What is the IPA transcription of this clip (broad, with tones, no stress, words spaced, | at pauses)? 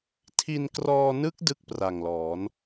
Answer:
tʰi˧nkrɔː˧nɯ˦˥k̚ dɯ˥˩k̚pra˨˩ŋlɔː˩˦n